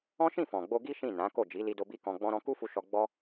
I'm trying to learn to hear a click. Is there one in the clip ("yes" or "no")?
no